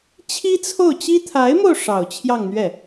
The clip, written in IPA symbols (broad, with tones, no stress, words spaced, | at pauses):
t͡ɕʰi˥t͡sʰo˥˩ʊ̯t͡ɕi˥ t̪ʰa˧˥ɪ̯mo˧ʊ̯ ʂɑ˨˩ʊ̯t͡ɕʰjɑ˥˧ŋn̪ɥɛ˥˩